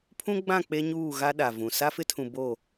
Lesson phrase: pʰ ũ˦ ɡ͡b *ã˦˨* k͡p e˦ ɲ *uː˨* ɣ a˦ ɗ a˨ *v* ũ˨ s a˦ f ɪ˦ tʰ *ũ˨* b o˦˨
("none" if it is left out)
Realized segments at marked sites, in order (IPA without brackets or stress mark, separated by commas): ã˦˨, uː˦˨, v, ũ˨